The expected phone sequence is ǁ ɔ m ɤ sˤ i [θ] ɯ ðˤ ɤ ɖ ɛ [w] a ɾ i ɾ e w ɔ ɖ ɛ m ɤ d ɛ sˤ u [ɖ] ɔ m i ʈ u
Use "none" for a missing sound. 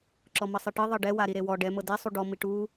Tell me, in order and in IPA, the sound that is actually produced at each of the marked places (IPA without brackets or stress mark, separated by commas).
ʈ, w, ɖ